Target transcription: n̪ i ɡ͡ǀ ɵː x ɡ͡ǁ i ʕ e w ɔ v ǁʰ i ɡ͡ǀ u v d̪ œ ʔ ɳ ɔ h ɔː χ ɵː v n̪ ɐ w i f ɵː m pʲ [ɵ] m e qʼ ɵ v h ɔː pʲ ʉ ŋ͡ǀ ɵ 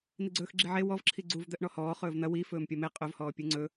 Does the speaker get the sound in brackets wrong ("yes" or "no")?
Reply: yes